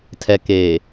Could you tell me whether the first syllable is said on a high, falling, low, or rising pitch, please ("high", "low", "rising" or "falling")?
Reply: low